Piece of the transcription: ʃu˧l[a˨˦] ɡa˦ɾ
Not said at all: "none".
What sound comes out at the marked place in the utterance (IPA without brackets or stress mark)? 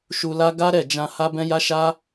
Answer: a˦